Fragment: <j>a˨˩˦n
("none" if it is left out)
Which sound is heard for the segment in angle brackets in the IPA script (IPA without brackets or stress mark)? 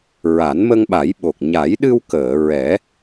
ɹ